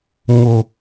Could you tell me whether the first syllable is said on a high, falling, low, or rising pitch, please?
low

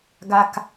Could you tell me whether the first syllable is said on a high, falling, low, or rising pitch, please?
low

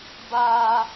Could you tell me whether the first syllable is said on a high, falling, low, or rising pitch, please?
high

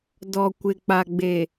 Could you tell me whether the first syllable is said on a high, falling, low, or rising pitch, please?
low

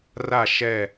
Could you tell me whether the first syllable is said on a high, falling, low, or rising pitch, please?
falling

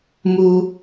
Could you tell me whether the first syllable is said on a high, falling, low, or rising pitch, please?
low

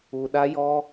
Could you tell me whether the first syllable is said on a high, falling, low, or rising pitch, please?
low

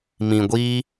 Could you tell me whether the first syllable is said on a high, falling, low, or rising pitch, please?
low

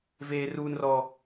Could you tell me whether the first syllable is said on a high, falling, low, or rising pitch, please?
high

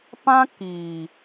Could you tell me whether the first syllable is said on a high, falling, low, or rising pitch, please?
high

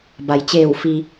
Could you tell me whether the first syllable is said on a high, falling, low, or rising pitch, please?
low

